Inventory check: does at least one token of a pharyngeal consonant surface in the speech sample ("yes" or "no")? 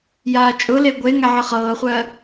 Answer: yes